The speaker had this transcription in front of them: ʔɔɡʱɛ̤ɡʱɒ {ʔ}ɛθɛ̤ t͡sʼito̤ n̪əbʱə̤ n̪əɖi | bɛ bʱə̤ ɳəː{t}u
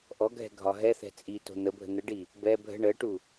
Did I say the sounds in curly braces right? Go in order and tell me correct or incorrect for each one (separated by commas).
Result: incorrect, incorrect